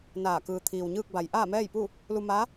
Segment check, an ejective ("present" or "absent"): absent